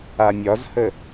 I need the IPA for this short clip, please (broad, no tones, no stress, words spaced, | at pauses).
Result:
amʲɒzhə